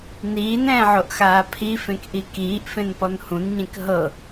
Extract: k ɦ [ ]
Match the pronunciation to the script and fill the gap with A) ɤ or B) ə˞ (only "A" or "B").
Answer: A